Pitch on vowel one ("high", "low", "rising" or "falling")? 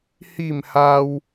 falling